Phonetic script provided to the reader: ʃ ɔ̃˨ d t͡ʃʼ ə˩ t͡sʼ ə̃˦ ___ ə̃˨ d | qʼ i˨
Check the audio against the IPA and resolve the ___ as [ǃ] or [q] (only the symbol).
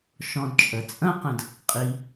q